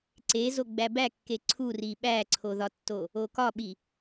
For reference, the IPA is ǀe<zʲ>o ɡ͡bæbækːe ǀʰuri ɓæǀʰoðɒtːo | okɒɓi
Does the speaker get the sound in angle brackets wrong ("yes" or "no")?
yes